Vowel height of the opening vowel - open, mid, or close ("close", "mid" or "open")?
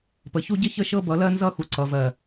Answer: mid